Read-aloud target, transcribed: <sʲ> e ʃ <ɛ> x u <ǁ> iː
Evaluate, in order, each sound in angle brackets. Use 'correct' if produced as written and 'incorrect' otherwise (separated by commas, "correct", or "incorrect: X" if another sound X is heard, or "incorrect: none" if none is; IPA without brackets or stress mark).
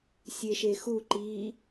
correct, incorrect: e, incorrect: ǃ